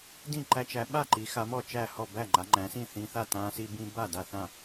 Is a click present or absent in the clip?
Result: present